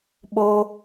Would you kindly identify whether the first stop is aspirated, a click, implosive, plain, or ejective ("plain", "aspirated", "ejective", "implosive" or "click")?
implosive